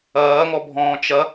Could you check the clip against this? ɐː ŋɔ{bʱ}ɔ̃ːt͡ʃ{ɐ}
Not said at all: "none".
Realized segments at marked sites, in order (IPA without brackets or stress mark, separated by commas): bʱ, ɐ